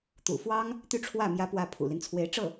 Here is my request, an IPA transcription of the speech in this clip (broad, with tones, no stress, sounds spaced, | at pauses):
t̪ ṵ˨˩ f w ɑ˥ ŋ | t̪ y˥˧ ʈ͡ʂʰ w ä˥˩ m j ä˥ p w ä˥˩ pʰ ṵ˨˩ l i˦ n t͡sʰ w e˧˥ ɪ̯ ʈ͡ʂ ɤ˥˩